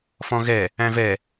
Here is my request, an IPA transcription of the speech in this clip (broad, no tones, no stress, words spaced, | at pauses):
fɔ̃ɣɛ | æ̃vɛ